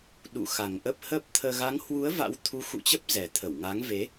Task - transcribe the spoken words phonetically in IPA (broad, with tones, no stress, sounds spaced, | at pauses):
ɗ ṵ˧˨ x a˨˩ ŋ ʔ ə˦˥ p̚ h əː˦˥ p̚ t̪ʰ əː˧ ɣ a˨˦ ŋ h w u˨˦ ə̯ v a̰˧˥ w t̪ʰ u˨˦ x ṵ˧˨ t͡ɕ ə˦˥ p̚ z ɛ˨˩ t̪ʰ ə˧˩ w ŋ a˨˦ ŋ v e˨˦